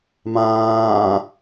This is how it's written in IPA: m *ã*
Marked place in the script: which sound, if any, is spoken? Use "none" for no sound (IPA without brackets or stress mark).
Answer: ãː